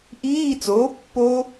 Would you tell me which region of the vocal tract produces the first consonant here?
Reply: throat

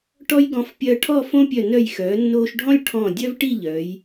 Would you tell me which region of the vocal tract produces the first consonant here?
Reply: retroflex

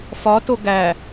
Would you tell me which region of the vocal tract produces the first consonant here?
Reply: lips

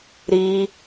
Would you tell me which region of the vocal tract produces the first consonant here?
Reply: tongue tip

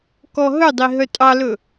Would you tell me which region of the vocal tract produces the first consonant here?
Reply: velum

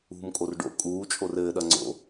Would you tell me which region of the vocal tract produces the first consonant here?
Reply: lips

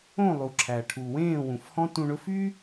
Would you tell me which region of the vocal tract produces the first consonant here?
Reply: tongue tip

